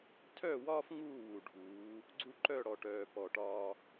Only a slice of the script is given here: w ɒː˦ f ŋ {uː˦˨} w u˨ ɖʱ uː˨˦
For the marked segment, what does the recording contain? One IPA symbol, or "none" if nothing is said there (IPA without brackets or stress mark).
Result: uː˦˨